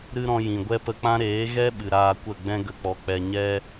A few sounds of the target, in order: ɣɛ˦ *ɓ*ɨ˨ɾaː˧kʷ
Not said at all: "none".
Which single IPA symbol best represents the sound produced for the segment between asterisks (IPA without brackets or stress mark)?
ɓ